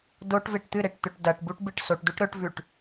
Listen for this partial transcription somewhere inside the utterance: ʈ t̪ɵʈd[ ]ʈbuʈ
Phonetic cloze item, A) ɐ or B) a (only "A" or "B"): A